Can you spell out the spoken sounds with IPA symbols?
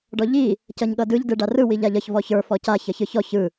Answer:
ɖ ɔ ʎ i | c ʌ ɲ ɠ ʌ d ɯ ʎ d ɯ ɖ a r ɯ w i ʎ a ʎ ʌ ç v ɔ ç ə˞ f ɔ c a ç ʌ ç ɯ ç ɔ ç ɯ

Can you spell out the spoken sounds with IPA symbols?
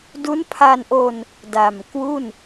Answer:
d u˦˥ n pʰ a˧ n ʔ o˧ n | d a˨˩ m k w u˥˩ n

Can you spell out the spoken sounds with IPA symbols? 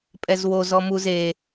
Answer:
pʼ ɛ z w o z ɔ m u z e

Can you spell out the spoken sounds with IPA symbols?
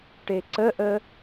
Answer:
ʈ e ǀ ə ʔ ə

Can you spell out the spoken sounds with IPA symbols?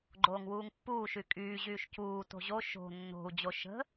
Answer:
ɡ͡ǃ oː ŋ w uː ŋ pː uː ʃ y kʼ yː ʑ yː ʃ c uː t o̤ ʑ o ʃ o̤ nː o̤ u̯ d͡ʑ o ʃ ə̤

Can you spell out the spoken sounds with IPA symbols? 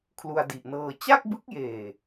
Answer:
kʰ l u˧ a̯ d i˨˩ ʔ n ɤː˧ t͡ɕ a˥˩ k̚ b ɯ˦˥ k̚ j eː˨˩

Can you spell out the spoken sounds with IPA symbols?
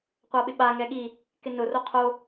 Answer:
qʷ a ɓ ɪ ɓ a ŋ ɛ ɠ i | k ɪ n ʊ r o qʰ o

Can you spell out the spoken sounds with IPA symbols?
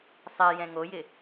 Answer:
sˤ e j ɛ̃ ŋ o j ɪ

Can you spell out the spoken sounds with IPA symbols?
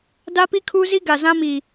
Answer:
d a˦ p i˦ kʰ uː˦ z i˦ ɡ a˨ z ã˦ m iː˨

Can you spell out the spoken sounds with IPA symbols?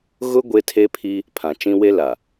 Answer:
ɣ ʊ˦ ɡʷ e˦ tʰ e˦ pʰ i˦ | pʰ ã˨ t͡ʃ ĩ˦ w e˦ l a˨

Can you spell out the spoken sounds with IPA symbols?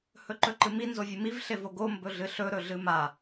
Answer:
h ɵ ǃ ɵ ǃ ɨ m i n z o vʲ ɨ m i v ɬ e v o ɡ o m b ɵ ɮ ɨ ɬ ɵ ɾ ɵ ɮ ɨ m a

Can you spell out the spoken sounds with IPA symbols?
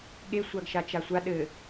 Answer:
ɠ e sʷ a ɡ ʃ a t͡ʃ a sʷ a ɗ ɘ

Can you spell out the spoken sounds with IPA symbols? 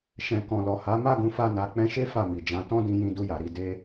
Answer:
ʃ ɛ̃˨ k ɔ̃˨ l ɔ˨ h a˨˦ m a˦˨ ɡ ũ˨˦ f a˧ n a˨ k͡p ɛ̃˧ ʃ e˦ f a˦˨ m i˨ d͡ʒ ã˨˦ t ɔ̃˦ d ĩ˧ j ĩ˧ d u˧ j a˨ ɾ i˨˦ d e˦

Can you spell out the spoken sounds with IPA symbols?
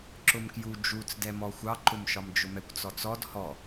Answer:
ǁ ʊ m k j u d͡ʒ u t͡s d ɛ m ɔ xʷ ɑ ǃ ʊ m ʃ ɒ m d͡ʒ ʊ m ɛ kʷ t͡s ɔ t͡s ɔ d h ɔ

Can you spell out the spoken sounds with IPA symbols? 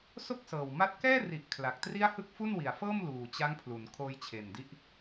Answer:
s o˥˩ k̚ s ɤː˨˩ w m a˦˥ t̚ k ɛː˥˩ r i˨˩ ʔ kʰ l a˨˩ k̚ t r i˥˩ a̯ h ɯ˥˩ k̚ f u˥˩ n w i˨˩ a̯ f ɤː˥˩ m l uː˨˩ t͡ɕ a˦˥ ŋ pʰ l u˩˦ n kʰ oː˧ j t͡ɕʰ e˨˩ n d i˦˥ ʔ

